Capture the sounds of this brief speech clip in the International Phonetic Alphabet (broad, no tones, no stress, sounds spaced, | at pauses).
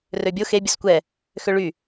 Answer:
r ø bʲ o x e bʲ ɵ s kʷ ɛ | x ø ɭ y